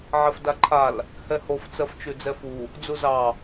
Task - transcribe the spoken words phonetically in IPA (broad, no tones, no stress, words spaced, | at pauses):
ʕɛfdaǃʰal | hɛhof t͡sɜft͡ʃʉd͡zɛfu | d͡zuzɑ